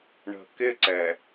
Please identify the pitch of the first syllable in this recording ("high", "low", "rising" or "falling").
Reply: low